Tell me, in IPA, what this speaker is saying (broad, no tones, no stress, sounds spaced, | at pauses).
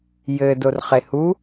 j ɘ d o r χ e h u